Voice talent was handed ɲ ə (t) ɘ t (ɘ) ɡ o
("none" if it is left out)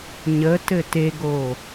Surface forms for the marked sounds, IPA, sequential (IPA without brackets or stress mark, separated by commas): t, e